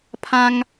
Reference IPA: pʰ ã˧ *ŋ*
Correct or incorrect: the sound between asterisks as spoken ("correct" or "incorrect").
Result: correct